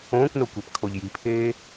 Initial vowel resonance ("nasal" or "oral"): nasal